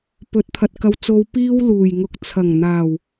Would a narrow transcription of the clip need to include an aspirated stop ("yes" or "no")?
yes